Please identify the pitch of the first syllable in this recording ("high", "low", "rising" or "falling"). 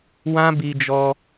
high